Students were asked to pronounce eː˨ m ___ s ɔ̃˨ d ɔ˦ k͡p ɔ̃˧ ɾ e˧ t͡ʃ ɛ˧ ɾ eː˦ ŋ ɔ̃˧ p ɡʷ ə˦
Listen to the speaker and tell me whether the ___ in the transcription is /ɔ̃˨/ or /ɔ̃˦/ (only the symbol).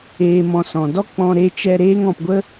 ɔ̃˨